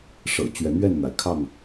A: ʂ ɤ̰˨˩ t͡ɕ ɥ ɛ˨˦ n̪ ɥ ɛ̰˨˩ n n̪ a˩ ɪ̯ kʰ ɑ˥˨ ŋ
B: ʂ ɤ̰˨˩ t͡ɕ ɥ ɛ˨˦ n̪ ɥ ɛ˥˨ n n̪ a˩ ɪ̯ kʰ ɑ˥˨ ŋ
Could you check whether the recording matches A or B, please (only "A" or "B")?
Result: B